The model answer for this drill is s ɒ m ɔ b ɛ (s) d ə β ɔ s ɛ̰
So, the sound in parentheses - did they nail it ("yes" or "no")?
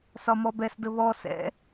yes